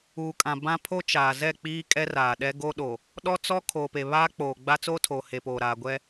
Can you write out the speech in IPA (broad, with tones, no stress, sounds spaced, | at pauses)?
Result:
uː˨ kʼ ã˨ b ã˦ pʰ o˦ t͡ʃ aː˨ z ɛ˦˨ k͡p iː˦ kʼ ɛ˦ r aː˨ ɗ ɛ˦ ɡ o˦ ɗ o˨ | ɗ ɔ˦ t͡s ɔ˦ kʰ oː˨ p e˨ β aː˦ k͡p oː˨ ɡ͡b a˦ t͡s oː˦ tʰ oː˨ h e˨ p oː˨ ɾ aː˨ ɡʷ ɛ˦